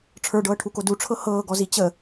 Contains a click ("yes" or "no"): no